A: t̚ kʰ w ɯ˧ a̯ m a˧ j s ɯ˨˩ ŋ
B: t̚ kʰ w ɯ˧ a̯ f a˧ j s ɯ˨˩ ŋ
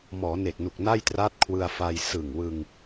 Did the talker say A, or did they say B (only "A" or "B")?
B